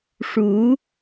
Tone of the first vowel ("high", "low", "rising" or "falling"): rising